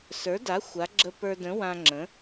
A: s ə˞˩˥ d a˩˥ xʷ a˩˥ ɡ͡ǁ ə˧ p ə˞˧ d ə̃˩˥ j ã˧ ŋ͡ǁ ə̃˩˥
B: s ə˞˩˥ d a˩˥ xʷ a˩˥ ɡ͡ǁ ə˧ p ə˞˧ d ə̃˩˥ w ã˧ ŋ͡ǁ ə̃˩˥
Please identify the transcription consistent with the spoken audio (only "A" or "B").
B